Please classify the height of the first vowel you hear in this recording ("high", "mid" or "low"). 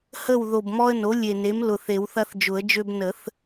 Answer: mid